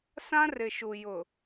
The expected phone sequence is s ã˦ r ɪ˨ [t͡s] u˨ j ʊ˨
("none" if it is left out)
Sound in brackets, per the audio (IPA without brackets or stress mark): ʃ